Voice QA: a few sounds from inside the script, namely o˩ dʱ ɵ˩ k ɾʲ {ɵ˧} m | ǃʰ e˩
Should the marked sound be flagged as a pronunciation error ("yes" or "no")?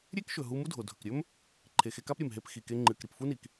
yes